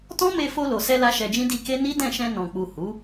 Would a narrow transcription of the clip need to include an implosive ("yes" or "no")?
no